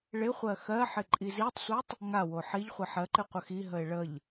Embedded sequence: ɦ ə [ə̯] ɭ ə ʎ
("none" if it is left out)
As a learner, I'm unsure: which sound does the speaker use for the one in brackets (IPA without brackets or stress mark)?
ɪ̯